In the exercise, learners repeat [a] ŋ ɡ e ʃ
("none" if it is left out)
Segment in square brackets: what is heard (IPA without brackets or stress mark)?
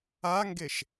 a